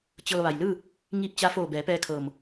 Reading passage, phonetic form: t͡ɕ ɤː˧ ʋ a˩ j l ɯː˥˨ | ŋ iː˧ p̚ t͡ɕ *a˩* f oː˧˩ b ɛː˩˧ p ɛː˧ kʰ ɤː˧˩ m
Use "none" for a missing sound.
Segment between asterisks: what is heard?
a˧˥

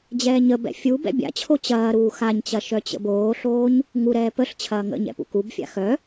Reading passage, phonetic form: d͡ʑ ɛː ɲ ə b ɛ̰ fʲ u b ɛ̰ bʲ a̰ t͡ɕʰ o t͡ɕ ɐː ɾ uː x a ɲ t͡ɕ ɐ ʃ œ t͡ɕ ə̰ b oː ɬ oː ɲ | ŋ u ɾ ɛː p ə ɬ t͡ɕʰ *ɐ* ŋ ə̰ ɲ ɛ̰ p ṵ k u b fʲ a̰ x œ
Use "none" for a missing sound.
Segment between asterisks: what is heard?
ɐː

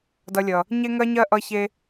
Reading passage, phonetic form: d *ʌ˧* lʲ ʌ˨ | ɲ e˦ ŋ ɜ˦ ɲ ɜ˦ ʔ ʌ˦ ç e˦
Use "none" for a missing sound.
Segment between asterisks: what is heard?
ʌ˧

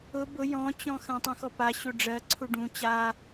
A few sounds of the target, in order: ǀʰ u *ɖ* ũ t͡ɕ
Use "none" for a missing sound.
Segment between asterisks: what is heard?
ɖ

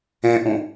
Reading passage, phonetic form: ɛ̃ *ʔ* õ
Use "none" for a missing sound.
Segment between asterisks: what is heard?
ʔ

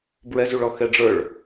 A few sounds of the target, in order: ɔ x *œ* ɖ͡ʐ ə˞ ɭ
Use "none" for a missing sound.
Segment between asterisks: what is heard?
ɛ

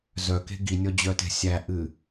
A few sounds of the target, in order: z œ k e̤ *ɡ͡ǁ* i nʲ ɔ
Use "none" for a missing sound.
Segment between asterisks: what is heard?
ɡ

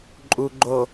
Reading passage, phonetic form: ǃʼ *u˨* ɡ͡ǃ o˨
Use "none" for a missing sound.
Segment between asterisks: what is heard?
u˨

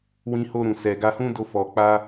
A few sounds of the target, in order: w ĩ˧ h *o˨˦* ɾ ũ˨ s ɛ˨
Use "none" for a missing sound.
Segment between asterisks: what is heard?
o˧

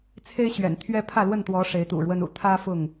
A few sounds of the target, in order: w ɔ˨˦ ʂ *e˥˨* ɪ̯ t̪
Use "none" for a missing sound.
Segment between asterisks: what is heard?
e˨˦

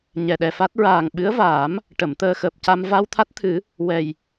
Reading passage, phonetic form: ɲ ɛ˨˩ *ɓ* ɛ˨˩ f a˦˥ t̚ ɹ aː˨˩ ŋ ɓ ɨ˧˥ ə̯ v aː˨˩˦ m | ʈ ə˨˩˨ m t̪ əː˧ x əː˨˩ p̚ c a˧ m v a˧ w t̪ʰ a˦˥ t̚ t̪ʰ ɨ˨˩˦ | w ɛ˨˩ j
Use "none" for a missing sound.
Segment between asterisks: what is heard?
ɗ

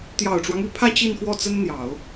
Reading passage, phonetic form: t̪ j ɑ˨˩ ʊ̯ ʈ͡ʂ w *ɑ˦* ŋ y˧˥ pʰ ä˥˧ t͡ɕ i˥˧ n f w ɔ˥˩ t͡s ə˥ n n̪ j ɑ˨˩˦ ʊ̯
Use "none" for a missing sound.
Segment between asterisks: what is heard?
ɑ˦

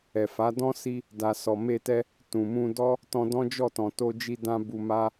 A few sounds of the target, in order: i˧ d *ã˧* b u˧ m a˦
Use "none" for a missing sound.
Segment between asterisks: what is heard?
ã˧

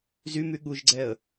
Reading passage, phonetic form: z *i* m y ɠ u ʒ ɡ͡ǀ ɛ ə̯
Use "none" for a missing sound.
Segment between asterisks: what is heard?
y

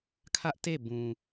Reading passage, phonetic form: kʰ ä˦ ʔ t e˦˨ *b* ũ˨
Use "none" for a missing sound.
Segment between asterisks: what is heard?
b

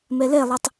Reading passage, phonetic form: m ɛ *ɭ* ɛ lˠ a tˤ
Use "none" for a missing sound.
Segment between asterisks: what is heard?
l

